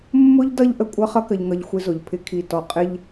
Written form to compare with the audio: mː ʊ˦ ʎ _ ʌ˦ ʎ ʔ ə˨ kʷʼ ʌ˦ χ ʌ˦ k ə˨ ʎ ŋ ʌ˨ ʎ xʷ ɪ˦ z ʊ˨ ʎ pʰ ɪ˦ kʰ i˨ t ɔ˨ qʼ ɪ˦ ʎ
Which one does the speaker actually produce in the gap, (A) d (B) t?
A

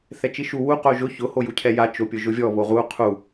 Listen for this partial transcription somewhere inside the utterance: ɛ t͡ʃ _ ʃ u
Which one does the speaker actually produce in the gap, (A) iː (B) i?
B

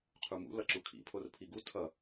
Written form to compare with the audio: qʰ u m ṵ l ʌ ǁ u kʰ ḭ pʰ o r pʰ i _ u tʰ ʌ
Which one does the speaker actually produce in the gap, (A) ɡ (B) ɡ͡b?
A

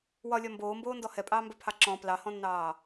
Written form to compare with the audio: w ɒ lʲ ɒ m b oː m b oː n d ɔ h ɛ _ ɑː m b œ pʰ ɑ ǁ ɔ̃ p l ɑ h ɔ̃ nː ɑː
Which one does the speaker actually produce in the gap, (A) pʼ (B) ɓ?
A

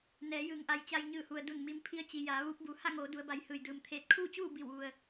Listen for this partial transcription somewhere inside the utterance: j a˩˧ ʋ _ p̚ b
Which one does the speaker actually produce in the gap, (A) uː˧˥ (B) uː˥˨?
A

